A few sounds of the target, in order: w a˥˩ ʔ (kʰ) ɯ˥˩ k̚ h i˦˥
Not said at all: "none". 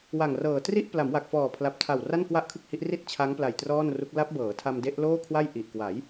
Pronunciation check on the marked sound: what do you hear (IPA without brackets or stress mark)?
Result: kʰ